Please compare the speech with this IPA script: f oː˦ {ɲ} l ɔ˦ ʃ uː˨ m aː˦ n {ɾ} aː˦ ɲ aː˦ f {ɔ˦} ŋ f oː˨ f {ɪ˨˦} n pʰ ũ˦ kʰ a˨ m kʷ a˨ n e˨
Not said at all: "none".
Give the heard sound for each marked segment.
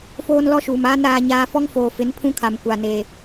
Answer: n, ɾ, ɔ˦, ɪ˨˦

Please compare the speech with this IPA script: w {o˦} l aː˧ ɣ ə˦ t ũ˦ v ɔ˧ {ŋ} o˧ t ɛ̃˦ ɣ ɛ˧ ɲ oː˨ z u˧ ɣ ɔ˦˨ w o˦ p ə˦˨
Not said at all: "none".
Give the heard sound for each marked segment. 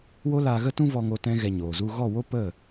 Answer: o˦, ŋ

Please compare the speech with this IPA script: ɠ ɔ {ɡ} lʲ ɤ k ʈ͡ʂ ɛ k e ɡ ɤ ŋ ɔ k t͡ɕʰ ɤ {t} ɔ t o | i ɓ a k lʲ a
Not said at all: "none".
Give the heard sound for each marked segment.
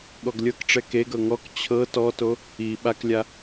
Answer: ɡ, t

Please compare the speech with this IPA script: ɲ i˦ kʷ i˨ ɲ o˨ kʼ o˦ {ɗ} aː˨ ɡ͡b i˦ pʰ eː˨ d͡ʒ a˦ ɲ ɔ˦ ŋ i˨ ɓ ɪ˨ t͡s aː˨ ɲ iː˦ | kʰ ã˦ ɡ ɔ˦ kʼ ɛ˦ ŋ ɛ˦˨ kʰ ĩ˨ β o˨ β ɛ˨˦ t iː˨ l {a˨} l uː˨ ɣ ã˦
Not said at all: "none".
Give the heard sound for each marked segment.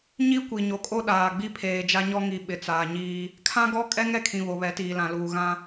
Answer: ɗ, ã˨

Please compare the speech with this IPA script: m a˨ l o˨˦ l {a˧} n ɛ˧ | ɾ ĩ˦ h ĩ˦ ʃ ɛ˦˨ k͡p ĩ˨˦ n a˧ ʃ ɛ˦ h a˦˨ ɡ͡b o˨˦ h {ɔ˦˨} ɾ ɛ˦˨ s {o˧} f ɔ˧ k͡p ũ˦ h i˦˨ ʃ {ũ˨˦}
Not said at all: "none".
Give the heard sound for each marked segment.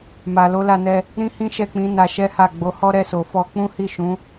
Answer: a˧, ɔ˦, o˨, ũ˨˦

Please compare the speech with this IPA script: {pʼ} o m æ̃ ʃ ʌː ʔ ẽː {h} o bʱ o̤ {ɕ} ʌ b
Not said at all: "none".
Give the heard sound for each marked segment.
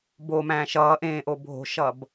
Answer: b, ʔ, ʃ

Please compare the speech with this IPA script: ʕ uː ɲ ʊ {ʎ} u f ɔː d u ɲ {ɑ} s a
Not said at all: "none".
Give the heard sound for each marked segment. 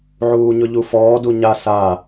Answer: ʎ, a

